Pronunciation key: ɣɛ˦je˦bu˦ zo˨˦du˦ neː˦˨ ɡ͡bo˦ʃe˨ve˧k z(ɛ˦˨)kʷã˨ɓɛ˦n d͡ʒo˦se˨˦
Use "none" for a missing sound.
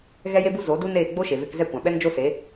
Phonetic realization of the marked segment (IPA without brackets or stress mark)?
ɛ˦˨